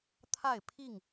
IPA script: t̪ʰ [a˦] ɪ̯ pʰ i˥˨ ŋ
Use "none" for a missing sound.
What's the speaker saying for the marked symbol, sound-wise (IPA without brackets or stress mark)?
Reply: a˥˨